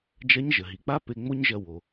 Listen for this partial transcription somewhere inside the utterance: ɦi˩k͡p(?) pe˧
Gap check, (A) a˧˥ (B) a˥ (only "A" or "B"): B